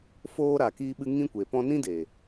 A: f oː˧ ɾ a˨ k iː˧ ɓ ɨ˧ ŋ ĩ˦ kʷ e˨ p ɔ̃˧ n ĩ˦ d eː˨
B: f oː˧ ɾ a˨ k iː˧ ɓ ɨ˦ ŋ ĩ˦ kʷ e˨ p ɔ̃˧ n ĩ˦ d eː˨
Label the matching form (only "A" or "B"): A